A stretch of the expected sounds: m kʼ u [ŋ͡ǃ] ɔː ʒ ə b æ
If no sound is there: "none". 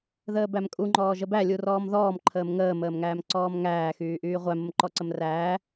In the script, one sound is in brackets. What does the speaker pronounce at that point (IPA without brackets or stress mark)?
ŋ͡ǃ